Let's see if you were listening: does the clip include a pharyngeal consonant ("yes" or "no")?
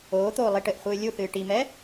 no